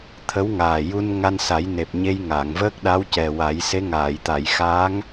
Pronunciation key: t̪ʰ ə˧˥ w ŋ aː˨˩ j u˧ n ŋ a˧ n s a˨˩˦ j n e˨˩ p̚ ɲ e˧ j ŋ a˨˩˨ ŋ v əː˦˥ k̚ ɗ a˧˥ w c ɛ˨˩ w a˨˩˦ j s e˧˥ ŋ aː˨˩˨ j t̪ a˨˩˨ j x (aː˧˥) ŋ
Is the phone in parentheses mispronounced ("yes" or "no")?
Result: no